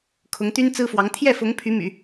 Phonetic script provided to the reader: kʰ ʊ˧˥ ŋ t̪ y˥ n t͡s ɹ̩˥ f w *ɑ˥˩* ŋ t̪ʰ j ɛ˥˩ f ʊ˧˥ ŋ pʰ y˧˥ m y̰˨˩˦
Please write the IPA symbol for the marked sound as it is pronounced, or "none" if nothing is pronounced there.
ɑ˧˥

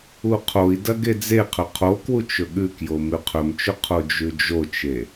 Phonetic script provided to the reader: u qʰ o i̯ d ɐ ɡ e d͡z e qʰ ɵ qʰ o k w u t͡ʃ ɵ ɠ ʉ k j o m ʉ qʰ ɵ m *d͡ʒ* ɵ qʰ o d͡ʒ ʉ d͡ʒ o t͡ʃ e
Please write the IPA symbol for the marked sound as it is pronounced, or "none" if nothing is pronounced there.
t͡ʃ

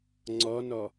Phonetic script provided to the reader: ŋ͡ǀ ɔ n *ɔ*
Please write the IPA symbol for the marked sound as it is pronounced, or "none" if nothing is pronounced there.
ɔ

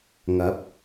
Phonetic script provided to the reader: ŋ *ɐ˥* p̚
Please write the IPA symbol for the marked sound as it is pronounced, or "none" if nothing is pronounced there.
ɐ˨˥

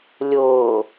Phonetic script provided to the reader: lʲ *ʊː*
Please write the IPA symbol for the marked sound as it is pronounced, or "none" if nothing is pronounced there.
ʊː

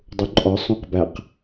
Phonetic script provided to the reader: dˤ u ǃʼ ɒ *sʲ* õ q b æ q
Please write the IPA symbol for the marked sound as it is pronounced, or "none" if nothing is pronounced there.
sˤ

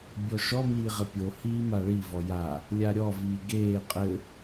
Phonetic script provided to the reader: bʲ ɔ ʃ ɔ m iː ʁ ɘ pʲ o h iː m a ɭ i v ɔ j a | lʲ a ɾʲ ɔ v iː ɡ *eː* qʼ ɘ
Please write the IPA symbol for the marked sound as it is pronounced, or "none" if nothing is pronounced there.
eː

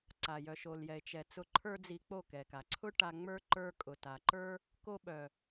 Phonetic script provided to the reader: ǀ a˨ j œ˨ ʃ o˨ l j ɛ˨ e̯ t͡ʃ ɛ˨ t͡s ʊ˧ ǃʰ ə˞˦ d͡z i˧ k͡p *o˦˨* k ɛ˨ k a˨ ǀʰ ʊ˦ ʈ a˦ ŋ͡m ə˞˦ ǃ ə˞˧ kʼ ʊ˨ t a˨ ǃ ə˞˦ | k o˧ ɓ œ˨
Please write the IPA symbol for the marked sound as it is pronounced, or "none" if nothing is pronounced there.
o˦˨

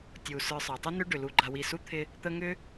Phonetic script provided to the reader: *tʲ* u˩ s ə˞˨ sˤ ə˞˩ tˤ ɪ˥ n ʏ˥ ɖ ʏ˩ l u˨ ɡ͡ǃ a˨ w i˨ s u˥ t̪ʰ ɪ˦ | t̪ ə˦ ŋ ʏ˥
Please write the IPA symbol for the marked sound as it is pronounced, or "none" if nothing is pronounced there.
tʲ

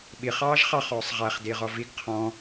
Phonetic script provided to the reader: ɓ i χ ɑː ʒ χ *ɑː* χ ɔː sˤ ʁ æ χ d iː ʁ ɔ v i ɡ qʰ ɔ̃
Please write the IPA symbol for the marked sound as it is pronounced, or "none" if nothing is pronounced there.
ɑ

